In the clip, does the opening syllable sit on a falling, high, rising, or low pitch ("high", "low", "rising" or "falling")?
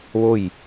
falling